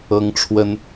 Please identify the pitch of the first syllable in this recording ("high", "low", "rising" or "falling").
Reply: high